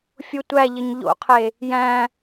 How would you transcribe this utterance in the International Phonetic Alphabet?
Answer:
fʲotʷæʎɘɲ ʎo̰qʰe | jæ̃

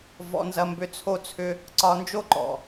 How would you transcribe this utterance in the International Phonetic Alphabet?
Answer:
vɔ̰˨nzɐ˨mbʏ˨ t͡sʰo˧t͡sʰʏ˧ | ǀɒ˧nd͡ʒo˦ ǃɔ̰˨

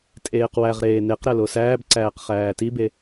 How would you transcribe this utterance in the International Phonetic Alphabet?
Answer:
tʼeːqwæʁɾeː neq ɾælosæːbǀæːq χæːtibe

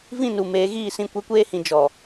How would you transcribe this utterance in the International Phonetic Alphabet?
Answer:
vĩ˦˨nu˨ meː˨˦ɣiː˦˨sĩ˦˨ kʷe˦kʷeː˦hĩ˨ d͡ʒɔ˨

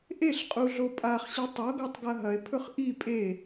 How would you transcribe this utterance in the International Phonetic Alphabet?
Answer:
ʔeɬqʼuɮo pʼaχɕi tˤoɡotˤɡɐ ɦɐe̯pʰɵχ ʔi pʼe

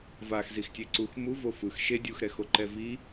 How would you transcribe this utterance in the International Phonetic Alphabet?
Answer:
vaxzixtʲe ǀux muvo fɯx ʃe dʲuxɾɛxoǃɛ vi

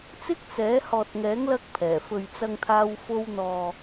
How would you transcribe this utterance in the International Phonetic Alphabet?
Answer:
t͡sɪ˥k̚t͡sɛː˨˥ hɔː˨t̚ŋɛː˨˥ŋ lɐ˥k̚pʰɛː˨˩ fɵ˨ɥt͡sɐ˧ŋt̪ʰaː˧w fo˧wn̪ɔː˨

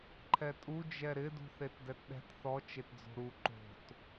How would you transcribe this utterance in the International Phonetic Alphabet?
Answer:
ǃʰɛtʼu d͡ʒɛɾɪ dṳθetdɛtɗɛ̤t θɔ t͡ʃetd͡zo̤ɾu ǃo̤t

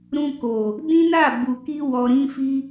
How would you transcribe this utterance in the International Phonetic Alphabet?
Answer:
ɾũ˧ko˨ | dĩ˦na˦˨ bu˨ki˧wɔ˨ɾĩ˧ fi˦

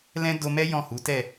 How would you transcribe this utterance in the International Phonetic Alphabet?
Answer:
lɛ̃˦do˧mɛ˦ jɔ̃˦˨hu˨˦tɛ˦˨

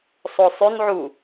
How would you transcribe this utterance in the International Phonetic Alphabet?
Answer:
sˤosˤʉnʕu

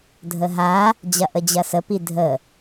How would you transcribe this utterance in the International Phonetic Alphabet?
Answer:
dʱəɦa | d͡ʑɐʔəd͡ʑɐsə pidʱə

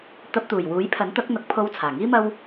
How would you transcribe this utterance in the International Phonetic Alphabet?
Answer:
t̪ɐ˧p̚t̪uː˨˩j wuː˨˥jpʰɐ˨˥nt̪ɐ˨˥k̚ n̪ɐ˨˥k̚pʰo˧wt͡sʰaː˨˩ŋiː˥ mɐ˥w

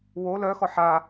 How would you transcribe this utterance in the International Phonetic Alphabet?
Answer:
wo lœxɔ ħa

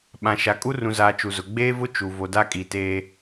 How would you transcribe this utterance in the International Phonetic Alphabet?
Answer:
ɓã˨ʃa˨ kʼu˦rũ˨zaː˨ t͡ʃu˨zʊ˨ ɡ͡beː˦vʊ˦ t͡ʃu˨ vo˨da˦kʼi˨ teː˦

